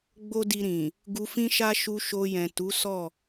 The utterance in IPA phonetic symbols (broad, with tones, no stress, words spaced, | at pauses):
ɡ͡bo˦di˧ɾĩ˨ | ɡu˧fĩ˦ʃa˦ ʃu˧ʃo˧jɛ̃˨ tu˨˦sɔ˦˨